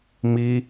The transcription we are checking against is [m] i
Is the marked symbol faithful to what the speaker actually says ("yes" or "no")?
yes